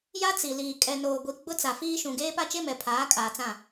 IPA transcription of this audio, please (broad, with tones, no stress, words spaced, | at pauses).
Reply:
ja˦t͡si˨liː˨ kʼɛ˨noː˨ɡʷi˨ ɡ͡bʊ˦t͡sa˨fiː˦ ʃũ˨ɡeː˦ pa˦t͡ʃe˦ mɛ˨pʰaː˨˦kʼaː˨ t͡sã˦˨